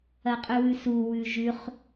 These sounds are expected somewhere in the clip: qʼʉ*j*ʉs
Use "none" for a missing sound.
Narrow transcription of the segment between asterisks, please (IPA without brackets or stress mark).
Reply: w